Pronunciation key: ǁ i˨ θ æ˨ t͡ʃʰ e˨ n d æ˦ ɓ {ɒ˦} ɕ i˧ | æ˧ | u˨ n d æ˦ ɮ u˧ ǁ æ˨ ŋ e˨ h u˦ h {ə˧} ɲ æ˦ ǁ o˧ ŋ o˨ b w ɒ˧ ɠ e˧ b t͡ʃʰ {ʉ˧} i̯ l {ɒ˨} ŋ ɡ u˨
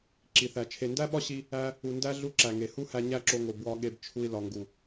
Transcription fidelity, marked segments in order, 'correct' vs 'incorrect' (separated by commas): correct, incorrect, incorrect, correct